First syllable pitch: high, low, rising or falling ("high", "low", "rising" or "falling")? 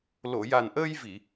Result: low